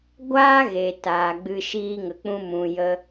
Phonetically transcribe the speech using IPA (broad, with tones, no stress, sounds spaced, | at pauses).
ɡʷ aː˦ ɣ e˨ t aː˨ ɡ͡b ɨ˧ ʃ iː˦ ŋ ə˧ k͡p ũ˦ m ũ˨ j ə˧